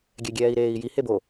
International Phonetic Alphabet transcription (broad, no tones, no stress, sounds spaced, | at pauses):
ɡʲ ɛ ɡʲ ɛː i̯ ɾ eː i̯ j i h e b o